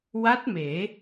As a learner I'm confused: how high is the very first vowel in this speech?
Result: low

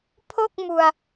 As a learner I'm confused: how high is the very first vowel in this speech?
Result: mid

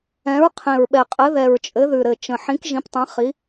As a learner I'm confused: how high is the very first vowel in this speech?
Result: mid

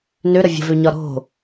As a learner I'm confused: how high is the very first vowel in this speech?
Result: mid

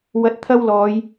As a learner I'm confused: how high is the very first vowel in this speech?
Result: low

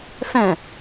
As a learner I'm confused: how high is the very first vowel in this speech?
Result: mid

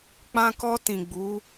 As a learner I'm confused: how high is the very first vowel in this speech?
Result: low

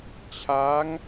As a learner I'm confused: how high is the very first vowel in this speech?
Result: low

